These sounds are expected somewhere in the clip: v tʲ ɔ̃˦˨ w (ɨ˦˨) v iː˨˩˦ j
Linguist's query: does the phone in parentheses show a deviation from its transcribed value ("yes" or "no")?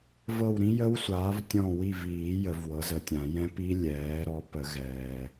yes